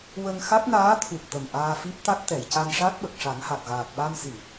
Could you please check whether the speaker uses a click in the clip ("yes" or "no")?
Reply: no